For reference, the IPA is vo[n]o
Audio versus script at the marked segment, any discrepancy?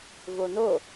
no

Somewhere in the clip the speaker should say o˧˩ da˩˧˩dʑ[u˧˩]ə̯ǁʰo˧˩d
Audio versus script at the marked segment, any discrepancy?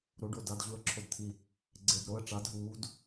no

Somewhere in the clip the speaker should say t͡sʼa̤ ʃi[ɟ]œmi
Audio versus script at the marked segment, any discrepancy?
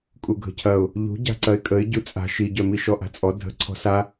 no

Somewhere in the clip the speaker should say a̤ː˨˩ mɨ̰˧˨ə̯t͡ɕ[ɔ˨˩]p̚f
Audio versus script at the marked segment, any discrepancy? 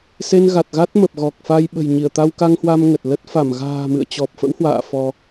no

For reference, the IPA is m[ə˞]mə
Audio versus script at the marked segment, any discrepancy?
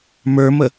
no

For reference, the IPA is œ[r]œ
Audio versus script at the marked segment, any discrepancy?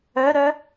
yes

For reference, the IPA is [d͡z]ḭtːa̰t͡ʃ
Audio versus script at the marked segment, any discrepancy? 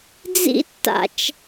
no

